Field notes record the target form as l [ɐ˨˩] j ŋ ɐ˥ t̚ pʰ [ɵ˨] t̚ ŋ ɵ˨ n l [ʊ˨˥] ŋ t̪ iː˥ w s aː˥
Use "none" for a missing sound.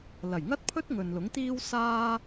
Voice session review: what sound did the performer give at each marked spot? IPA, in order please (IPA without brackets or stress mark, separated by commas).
ɐ˨˩, ɵ˥, ʊ˨˥